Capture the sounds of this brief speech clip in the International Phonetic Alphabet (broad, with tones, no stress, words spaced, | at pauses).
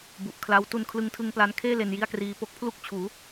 bu˨˩ʔkʰla˦˥w tu˧nkʰlɯ˧ŋtʰɯ˧ŋ pla˧nkʰeː˥˩ le˧nji˥˩a̯kriː˧ po˦˥k̚pʰlu˥˩k̚ t͡ɕʰuː˩˦